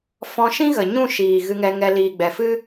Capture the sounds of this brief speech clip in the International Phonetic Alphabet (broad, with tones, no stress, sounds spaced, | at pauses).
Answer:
f ɔ̃˧ ʃ ĩ˦ ɣ ə˨ ɲ ũ˦˨ ʃ iː˨ ɣ ɨ˧ ŋ ɛ˧ ŋ ɛ˧ l iː˨ ɡ͡b ɛ˨ f ɨ˦